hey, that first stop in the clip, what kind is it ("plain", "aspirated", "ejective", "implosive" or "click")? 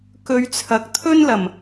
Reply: plain